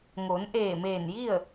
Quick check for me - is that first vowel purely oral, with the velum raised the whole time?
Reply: yes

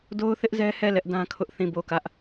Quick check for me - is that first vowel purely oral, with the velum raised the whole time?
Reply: yes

